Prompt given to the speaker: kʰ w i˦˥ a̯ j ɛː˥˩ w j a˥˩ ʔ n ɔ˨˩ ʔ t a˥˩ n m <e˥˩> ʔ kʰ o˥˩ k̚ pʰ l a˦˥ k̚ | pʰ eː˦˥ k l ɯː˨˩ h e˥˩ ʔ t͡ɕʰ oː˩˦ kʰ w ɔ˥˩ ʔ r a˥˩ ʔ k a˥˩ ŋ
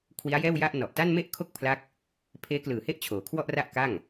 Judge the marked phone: correct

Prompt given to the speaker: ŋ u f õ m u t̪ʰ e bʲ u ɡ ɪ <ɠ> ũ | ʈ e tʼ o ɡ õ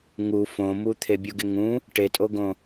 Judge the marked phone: incorrect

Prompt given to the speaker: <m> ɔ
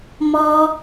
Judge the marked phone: correct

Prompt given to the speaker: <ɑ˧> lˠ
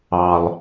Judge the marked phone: correct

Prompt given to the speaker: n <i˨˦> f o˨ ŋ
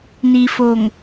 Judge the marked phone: incorrect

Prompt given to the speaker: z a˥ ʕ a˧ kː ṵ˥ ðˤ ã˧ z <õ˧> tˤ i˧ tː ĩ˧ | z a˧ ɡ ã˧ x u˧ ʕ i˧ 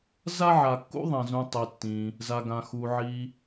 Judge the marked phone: incorrect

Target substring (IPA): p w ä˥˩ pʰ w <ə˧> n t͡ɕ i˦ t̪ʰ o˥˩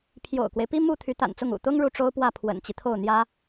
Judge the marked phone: incorrect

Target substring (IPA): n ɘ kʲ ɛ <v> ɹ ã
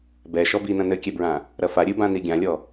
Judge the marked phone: incorrect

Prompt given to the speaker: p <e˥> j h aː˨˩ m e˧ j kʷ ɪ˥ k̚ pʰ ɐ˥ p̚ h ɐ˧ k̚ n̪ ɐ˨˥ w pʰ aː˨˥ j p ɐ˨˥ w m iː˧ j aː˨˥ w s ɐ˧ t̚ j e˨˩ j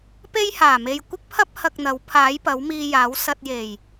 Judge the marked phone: correct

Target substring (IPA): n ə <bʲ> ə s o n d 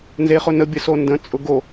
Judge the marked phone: correct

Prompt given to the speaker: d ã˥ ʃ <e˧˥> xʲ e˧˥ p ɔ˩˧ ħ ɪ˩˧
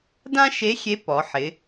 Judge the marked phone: correct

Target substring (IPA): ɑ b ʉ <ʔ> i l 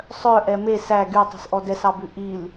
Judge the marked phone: correct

